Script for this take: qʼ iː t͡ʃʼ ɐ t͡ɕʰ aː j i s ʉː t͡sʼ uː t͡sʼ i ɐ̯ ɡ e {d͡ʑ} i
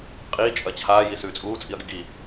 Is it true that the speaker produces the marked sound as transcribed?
no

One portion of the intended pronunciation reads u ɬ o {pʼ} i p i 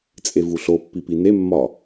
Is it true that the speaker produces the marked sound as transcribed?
no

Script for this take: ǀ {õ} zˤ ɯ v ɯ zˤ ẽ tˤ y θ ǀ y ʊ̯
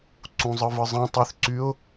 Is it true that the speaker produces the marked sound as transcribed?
no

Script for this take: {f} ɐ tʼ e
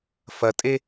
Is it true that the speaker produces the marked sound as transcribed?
yes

